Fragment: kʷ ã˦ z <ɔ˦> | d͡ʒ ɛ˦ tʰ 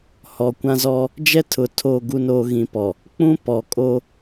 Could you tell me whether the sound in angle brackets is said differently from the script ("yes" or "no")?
no